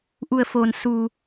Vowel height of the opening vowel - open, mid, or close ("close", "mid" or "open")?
close